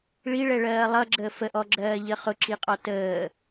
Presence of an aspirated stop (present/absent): absent